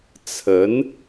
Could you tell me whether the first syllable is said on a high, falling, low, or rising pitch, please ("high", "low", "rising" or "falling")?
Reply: rising